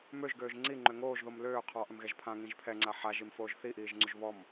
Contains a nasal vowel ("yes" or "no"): yes